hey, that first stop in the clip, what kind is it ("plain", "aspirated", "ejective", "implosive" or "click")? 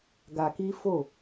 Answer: plain